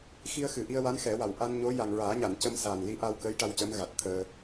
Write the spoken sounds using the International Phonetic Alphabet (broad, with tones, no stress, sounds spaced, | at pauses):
x i˧ ə̯ x ɨ˨˩˨ ʔ i˧ ə̯ w a˧˥ n x ɛ˨˩˦ w a˨˩ w ʔ a˧ n ɲ o˧˥ j a˨˩ ŋ ɹ aː˨˩˦ ɲ a˨˩˨ n c ə˧ m s aː˨˩ n l i˧˥ ʔ a˧ w k əː˧˥ j ʈ a˧ w c ə˧˥ m ɣ a˨˩ t̚ t̪ʰ əː˧